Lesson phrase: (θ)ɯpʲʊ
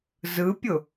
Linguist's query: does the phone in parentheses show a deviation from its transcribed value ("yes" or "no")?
yes